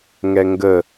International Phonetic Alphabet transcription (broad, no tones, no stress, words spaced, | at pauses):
ŋɛŋɡə